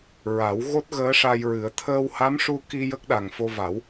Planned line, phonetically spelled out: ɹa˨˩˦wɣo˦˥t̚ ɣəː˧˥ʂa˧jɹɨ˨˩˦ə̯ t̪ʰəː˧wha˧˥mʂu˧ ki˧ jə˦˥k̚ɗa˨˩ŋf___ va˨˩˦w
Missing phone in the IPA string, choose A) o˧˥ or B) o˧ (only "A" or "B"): B